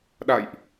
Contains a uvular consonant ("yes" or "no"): no